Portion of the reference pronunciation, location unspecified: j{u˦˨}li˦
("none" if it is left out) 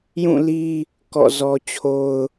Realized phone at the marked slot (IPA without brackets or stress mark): ũ˦˨